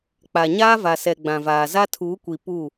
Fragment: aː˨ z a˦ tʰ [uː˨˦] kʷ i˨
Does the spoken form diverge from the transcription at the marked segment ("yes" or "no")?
no